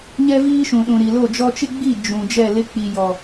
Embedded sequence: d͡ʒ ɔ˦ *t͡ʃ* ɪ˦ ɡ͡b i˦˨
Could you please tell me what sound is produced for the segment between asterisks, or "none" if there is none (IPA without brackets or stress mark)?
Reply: t͡ʃ